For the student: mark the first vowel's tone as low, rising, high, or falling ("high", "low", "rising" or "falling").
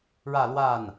falling